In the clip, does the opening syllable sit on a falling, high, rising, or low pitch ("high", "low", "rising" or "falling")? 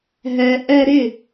low